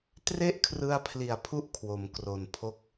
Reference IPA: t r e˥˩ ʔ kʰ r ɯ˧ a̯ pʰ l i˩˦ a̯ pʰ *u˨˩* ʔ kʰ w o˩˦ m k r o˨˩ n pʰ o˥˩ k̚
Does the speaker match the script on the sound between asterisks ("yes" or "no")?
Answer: no